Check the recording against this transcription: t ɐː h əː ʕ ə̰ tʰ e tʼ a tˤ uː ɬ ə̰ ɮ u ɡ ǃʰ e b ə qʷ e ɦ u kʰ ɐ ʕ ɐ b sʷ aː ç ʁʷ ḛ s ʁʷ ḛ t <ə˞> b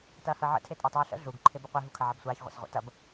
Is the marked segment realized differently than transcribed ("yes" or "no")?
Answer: yes